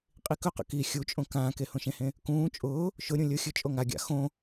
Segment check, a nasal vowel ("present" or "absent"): present